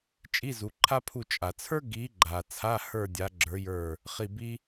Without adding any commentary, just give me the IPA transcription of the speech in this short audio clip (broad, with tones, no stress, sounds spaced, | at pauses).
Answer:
t͡ʃʼ i˧˥˧ z u˨˦ ǃʰ a˥ pʰ u˦˨ t͡ʃʼ a˨ t͡sʰ ə˞˥ ɡ i˨˦ ɡ͡ǃ a˨ t͡sʰ a˧˥˧ h ə˞˦˨ dʲ a˨˦ ɡ͡ǁ ə˞˨˦ j ə˞˦˨ | χ i˦˨ b i˥